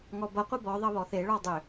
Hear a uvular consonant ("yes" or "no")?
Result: yes